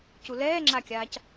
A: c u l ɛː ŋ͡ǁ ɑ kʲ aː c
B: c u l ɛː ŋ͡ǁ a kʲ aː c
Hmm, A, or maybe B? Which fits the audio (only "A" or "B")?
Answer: B